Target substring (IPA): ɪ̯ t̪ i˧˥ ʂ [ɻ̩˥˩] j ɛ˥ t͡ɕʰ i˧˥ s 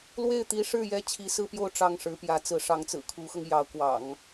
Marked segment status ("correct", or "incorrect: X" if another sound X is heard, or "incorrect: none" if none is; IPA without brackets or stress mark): correct